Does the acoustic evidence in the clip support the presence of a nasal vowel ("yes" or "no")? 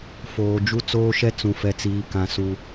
yes